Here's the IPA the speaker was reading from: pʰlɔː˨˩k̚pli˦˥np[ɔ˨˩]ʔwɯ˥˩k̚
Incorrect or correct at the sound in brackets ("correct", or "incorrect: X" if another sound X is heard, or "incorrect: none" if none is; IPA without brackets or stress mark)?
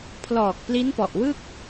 correct